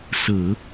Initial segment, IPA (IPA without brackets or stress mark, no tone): s